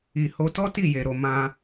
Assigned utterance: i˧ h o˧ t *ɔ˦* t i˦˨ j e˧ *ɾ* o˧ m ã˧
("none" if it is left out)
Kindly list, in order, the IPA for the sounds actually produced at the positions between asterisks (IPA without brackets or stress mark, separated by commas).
ɔ˦, ɾ